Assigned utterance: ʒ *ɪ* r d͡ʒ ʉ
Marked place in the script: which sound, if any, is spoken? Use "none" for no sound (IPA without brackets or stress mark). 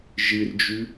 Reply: ɨ